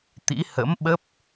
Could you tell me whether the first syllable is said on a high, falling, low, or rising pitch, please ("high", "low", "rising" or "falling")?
rising